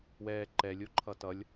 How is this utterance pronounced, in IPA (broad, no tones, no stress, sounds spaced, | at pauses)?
w ɛː ǃ ɛ lʲ o ǃʰ ʌ t ʌ lʲ